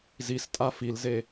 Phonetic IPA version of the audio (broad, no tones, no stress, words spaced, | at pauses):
zistʼa filze